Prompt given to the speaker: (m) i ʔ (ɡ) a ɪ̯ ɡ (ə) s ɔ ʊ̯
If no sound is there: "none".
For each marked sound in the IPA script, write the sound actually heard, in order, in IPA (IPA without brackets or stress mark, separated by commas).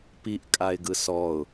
p, kʼ, ɯ